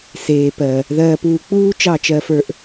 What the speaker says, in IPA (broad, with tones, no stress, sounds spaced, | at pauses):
s eː˨ p ɜ˨ | ð ɜː˧ p uː˧ k͡p uː˦ t͡ʃ ɑ˦˨ t͡ʃ ɜ˧ f ə˞˧ ʔ